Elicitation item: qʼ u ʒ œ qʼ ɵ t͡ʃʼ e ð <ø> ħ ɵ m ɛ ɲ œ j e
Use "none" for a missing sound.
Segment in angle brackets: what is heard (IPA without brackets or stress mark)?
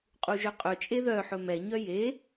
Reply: œ